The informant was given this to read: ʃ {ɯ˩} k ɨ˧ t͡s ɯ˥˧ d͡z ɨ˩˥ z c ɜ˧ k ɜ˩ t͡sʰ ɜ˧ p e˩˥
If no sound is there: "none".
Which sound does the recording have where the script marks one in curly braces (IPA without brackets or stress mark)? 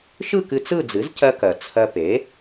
ɯ˥˧